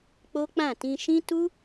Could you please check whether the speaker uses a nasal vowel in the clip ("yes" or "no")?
yes